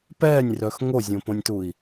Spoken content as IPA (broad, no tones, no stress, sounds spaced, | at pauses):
p ɛː nʲ r œ x ŋ o zʲ õ p õ nʲ t u i̯